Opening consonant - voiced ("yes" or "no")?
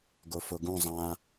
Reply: yes